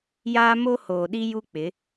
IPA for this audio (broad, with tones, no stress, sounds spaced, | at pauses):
j aː˦ m o˦ h oː˨ ɗ i˦ j u˦ k͡p ɪ˨˦